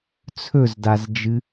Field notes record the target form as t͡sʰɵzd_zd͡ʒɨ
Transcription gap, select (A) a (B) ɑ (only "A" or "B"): A